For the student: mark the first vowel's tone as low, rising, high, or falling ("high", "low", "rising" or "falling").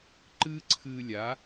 high